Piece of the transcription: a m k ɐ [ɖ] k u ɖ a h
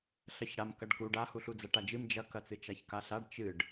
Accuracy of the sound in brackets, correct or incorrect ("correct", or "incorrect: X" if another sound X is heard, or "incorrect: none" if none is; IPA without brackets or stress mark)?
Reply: correct